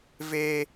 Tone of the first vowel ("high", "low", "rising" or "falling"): high